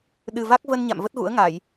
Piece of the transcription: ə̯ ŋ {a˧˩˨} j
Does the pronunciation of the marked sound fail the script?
no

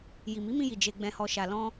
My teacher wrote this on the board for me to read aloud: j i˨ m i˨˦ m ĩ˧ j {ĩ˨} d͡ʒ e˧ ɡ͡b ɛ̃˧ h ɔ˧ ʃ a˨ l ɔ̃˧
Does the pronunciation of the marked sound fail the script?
yes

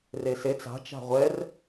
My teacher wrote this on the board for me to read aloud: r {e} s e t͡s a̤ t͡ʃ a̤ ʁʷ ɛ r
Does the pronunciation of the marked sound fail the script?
no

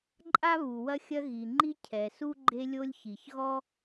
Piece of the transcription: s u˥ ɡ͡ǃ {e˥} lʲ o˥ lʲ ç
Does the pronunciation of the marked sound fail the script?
no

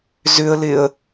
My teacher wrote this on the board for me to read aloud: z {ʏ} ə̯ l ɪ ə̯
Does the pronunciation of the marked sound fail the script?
no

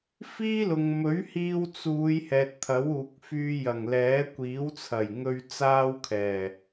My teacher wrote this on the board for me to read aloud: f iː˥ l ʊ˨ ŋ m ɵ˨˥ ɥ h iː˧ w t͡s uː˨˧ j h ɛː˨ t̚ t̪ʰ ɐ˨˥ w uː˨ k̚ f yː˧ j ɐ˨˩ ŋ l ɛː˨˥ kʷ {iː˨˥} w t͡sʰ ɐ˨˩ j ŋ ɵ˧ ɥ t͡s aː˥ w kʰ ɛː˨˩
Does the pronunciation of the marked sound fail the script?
no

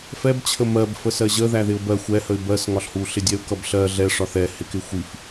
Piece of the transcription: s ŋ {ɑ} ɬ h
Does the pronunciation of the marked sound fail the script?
yes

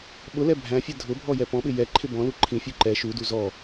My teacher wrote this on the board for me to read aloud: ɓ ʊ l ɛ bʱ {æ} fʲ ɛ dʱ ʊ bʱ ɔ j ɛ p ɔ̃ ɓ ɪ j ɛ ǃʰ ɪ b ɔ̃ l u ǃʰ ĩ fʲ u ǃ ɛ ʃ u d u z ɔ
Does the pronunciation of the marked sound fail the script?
yes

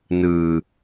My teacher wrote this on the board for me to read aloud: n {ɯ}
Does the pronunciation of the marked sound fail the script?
no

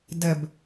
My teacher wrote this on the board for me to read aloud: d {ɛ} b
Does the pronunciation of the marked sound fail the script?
no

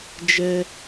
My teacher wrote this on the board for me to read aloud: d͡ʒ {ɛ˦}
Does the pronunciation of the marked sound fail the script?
no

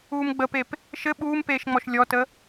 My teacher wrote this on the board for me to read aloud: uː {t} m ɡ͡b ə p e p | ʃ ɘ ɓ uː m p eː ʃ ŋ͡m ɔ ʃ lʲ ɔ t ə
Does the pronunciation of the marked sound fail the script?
yes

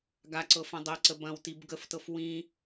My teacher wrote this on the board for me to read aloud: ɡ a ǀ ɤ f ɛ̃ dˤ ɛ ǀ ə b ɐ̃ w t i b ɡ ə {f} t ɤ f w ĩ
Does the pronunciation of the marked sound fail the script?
no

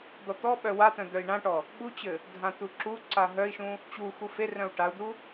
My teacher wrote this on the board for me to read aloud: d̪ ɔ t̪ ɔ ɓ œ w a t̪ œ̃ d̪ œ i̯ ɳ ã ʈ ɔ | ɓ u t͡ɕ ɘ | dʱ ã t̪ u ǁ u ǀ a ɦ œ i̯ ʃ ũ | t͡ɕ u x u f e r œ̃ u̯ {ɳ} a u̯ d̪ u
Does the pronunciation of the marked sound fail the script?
yes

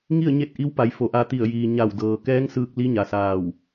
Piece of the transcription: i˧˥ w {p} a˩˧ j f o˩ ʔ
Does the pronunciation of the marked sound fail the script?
no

